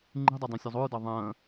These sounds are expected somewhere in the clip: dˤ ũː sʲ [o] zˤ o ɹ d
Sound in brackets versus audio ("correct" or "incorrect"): incorrect